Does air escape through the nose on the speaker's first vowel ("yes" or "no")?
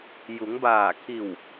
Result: no